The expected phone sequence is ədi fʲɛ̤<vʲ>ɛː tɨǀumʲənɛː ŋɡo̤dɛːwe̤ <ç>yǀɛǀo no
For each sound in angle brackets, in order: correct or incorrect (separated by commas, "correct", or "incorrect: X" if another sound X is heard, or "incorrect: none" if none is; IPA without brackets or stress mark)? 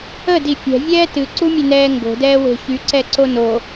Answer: correct, correct